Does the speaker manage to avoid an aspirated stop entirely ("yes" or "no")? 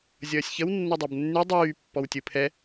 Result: no